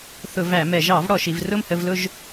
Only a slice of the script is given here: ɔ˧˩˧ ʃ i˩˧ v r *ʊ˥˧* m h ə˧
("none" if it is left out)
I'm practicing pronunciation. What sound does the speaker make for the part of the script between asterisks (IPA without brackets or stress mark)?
ʊ˥˧